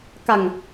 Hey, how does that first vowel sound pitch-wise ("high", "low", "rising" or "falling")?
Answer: low